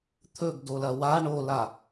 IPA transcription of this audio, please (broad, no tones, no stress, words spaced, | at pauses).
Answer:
t̪ʰɵɡdolɐ wa ɳola